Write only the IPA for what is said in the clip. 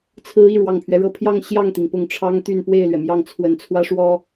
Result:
t͡sʰɹ̩˧˥ i˥˩ɻwɑ˨˩ŋpʰɥɛ˦ɻɤ˥˧ pʰjɑ˥˧ŋ ɕjɑ˥˩ŋt̪i˩ŋ pʊ˥˩ŋʈ͡ʂʰɑ˥ŋt̪y˥˧n pwe˥˩ɪ̯lɥɛ˩mjɑ˥˩ŋt͡sʰwə˧˥n t͡sʰwä˥ʂwɔ˥

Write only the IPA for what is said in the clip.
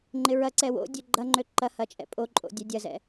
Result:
ŋ͡ǃɪɹɐǀɛ wo̰ dʲøɡ͡ǃɐŋ͡ǃø ǃɐhɐ t͡ʃʼɛ̰pʼoǃʼo̰ dʲœdʲɐzɛ̰

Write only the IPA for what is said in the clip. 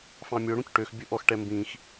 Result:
fɑ̃mʲɵ ɽũcʈøx bʲɵʔɔx ʈɛmbĩx

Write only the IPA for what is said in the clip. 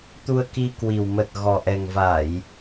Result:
t̪u˧ə̯ki˧ kwi˨˩w mə˨˩t̚ ɣɔ˨˩ʔɛ˨˩ŋva˧˩˨j

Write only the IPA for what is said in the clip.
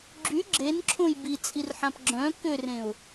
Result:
ɡ͡ǁy ɡ͡ǁenǁʰõj bit͡sʼirħãp ɡ͡ǁœ̃ kʏrẽʊ̯

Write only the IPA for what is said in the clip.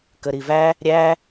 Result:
kəɾivæ | ɾʲæ

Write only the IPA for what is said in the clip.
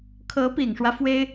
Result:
kʰɤ˧˥pi˨˩ŋʂwä˦ fwe˥ɪ̯

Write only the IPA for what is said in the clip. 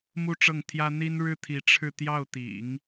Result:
mu˥ʈ͡ʂɤ˥˩ŋt̪ʰjä˥ n̪i˥nɻɻ̩˥t̪ʰi˧˥ ʈ͡ʂʰɻ̩˥˧ t̪jɑ˥˩ʊ̯t̪ḭ˨˩˦ŋ

